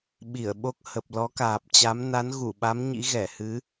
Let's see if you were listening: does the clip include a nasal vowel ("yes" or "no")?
no